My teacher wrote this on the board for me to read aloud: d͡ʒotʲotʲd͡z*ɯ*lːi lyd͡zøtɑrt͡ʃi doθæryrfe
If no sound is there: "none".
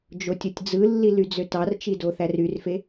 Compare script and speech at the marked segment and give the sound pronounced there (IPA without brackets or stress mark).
ɯ